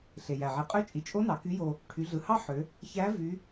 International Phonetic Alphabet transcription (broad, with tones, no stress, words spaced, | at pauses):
ɬe˩jæ˩ ʕi˩qʼø˧˥t͡ʃʼi˩˧t͡ʃʼo˧˥ nɑ˩˧ky˧˥jo˧ | ʈʰy˩˧ɮɯ˩hɑ˥ħø˩˧ | çæ˧˥ vy˧˥